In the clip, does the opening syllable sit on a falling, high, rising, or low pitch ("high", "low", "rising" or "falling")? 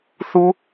high